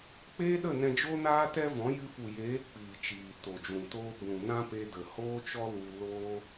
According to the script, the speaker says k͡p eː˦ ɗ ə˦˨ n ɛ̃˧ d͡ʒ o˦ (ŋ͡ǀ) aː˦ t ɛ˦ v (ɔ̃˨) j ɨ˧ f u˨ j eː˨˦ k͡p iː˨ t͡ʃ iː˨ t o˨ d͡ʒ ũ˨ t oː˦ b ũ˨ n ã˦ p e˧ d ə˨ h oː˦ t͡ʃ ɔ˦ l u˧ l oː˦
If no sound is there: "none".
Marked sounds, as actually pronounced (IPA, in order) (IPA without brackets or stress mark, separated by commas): n, ɔ̃˨˦